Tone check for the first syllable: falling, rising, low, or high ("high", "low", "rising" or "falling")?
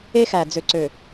high